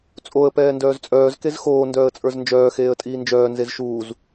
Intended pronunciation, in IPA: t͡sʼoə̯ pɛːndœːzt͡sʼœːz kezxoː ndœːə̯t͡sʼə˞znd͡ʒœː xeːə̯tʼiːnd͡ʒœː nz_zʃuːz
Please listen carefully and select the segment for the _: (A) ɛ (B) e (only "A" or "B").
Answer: B